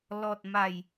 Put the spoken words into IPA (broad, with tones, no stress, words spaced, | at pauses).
lɔ˨t̚ma˨˩j